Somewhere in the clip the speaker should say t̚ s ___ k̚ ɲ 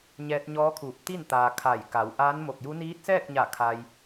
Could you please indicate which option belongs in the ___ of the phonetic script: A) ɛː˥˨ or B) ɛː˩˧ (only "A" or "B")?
A